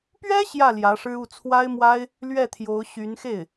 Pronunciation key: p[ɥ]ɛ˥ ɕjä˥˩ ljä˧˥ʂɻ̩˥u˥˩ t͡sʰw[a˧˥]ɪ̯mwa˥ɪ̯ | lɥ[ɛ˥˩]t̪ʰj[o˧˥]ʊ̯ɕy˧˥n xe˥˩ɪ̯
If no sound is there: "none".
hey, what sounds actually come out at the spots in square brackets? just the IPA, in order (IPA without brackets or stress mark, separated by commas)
ɥ, a˥, ɛ˥˩, o˧˥